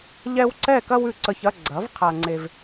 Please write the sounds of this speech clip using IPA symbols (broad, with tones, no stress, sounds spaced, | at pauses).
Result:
ʎ ɛ˦ w ǀ ɛ˥˨ k ɐ˦ w ʉ˨ ǀ ə˨ ç ɐ˥˨ ɡ͡ǀ ɐ˩˥ v qʰ a˨ ŋ͡ǀ e˨ v